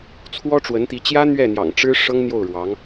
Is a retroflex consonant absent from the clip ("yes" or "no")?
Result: no